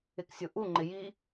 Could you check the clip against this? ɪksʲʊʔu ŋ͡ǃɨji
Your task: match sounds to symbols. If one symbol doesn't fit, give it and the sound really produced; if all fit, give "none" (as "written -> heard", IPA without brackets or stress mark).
ɨ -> ɪ